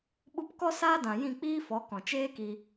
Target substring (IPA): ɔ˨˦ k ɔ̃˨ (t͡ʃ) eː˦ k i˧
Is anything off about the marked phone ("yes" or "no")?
no